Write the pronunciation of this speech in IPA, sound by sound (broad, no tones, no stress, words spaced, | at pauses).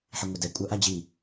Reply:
ħiŋʷɪdɛ kʷʼœʔad͡ʑi